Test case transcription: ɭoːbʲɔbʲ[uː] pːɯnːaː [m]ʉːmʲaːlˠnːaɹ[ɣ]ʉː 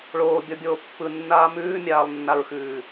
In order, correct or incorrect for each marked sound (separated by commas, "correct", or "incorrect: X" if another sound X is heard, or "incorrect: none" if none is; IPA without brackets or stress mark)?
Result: incorrect: oː, correct, incorrect: x